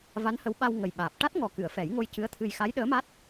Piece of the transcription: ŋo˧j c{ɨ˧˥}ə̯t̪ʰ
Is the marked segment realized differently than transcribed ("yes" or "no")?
no